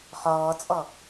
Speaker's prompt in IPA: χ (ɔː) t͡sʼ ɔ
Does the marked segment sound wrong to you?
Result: no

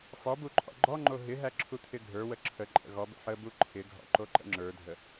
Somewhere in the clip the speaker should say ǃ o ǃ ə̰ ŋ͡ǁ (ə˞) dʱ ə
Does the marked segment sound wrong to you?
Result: no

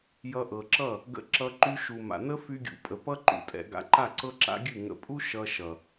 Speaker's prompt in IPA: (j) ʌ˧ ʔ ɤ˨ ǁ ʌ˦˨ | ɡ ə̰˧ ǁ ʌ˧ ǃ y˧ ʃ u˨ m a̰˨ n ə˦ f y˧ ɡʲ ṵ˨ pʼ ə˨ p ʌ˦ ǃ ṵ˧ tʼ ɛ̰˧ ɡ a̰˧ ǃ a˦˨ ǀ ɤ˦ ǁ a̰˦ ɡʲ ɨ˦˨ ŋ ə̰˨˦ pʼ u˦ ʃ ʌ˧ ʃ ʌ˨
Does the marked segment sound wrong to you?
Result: no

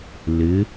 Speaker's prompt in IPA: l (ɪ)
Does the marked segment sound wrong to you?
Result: no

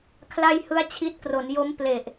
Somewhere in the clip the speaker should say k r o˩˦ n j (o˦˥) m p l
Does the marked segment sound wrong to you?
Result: no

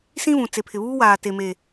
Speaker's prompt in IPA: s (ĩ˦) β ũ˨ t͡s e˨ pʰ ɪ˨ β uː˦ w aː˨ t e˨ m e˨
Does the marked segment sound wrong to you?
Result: no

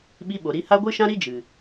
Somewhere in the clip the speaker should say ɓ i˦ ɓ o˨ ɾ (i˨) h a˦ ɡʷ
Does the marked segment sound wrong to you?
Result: yes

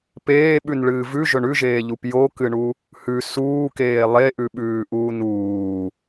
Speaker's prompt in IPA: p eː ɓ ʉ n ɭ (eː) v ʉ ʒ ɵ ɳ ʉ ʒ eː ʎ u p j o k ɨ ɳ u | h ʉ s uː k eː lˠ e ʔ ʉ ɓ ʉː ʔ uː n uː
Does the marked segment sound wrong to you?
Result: yes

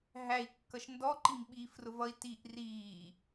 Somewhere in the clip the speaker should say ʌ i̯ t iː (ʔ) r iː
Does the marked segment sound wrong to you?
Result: no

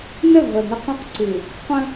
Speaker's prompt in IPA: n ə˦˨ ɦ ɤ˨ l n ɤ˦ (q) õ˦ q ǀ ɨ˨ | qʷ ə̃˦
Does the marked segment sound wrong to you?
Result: no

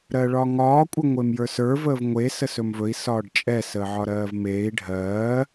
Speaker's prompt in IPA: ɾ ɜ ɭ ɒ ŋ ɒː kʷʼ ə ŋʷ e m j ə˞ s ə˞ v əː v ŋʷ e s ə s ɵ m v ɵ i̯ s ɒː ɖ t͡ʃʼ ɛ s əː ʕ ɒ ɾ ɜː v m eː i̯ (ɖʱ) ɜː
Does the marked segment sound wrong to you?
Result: no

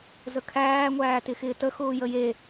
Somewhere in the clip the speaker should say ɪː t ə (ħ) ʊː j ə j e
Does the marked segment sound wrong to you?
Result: yes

